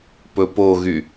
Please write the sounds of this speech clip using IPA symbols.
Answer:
pɵpoɣy

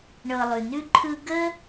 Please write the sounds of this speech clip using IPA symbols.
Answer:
ɳɤ˨lˠʉ˩nʉ˥ǃʰɯ˦ ɡə˥

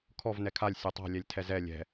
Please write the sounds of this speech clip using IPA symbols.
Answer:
kʰɔv nɛkʰalʲ sʲɛtˤa̤ lʲɛlʲtʰɛzɛ lʲɛ̤

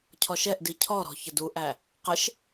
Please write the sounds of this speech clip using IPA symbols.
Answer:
cʰɔʃɛʔdi cʰɔɾɔ̤ çəduʔæ | qəʃ

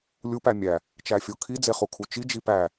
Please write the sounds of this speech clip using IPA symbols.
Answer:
lʲupæ mʲæ | t͡ʃæfʲokʰid͡ze χukʰut͡ʃi d͡ʒipæ

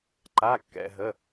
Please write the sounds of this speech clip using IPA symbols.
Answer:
ǃa˩˧˩kːɛ̰˩ɦə˩˧˩

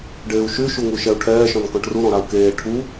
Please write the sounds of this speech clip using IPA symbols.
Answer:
ɖeːu̯ʃy ʃuŋuʃɛu̯ʈʰɛː ʃɔ̃nkɔ̃ʈru ɾɔ̃ɾau̯keː ʈʰu

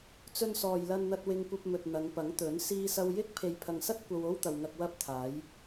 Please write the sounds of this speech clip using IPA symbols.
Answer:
t͡sɵ˧nsɔː˨jlɐ˧nn̪ɐ˧t̚ wɪ˧ŋkʷɐ˧p̚mɵ˨t̚ n̪ɐ˨˧ŋpɐ˨˥ŋt̪ɵ˨˥n siː˧sɐ˧wjɪ˥k̚ pʰe˨jpʰɐ˨ŋsɐ˥t̚ kʷɐ˧wo˥wt̪ɐ˨wŋɐ˧k̚ wɐ˧p̚t̪ʰaː˨˧j

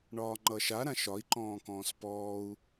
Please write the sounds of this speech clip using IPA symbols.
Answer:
ɳɒːŋ͡ǃʌʃa ɾãʃɒi̯ ǃɔ̃ːkɔ̃ːspɔːu̯

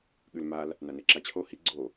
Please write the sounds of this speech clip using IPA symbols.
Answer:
ɠʉlmal | naneǁat͡ɕʰo hi ɡ͡ǀo

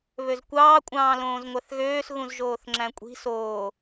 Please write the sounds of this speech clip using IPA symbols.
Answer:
βøzkʷɑː kʷʼɑ̃ːlõːzŋʷæθɣøːs ɣũzʒoːθŋ͡ǁæ̃kʷʼi̤ soː

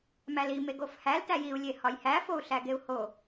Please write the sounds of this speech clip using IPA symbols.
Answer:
mæli meɡofhæl tæjiu̯ lʲehɒjhæ fou̯ɬæɡeu̯ho

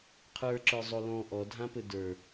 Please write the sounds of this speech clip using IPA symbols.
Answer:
qʰə˞ǁə˞ zˤolɔ̃ ʔɔdʱãpɘ də˞

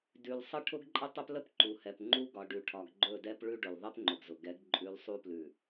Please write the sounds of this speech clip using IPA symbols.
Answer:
dʉ˨lsˤə˦ ʈʰʊ˦ɡǃʼə˦tˤɵ˦plə˦p ǃu˨hɛ˨pŋ͡ǃu˦ ɡɒ˨ɖʉ˨ʈʰɒ˨ɡ ɡ͡ǃɵ˦˨dɛ˦p ɭʉ˦ɖʊ˨l ðˤɛ˦pŋ͡ǃʊ˨ɡzʊ˨ɡɛ˨˦ɡ ǃʼʉ˨˦l sˤu˦plʉ˨

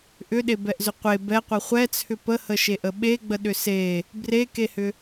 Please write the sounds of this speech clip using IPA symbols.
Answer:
ʔʏɗebɛʔzʏ qʷe bɛqʷɛ χʷɛt͡sʰʏ pəhəʃeʔə ɓeɡ͡bəɗʏ se | brekehʏ

